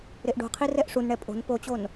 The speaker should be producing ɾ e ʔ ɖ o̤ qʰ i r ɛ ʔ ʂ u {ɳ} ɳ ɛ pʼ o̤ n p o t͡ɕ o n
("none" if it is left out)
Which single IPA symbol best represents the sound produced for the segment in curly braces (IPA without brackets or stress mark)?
n